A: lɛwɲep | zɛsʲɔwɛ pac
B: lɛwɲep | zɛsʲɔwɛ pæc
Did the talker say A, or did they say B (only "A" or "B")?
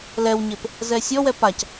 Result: A